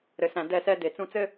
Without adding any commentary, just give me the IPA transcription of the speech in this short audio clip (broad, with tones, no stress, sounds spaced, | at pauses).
ɾ ɘ˨ s æ̃˨ d ɛ˦˨ s ɛ˦ d e˨ t͡s ũ˦ t͡s ɘ˦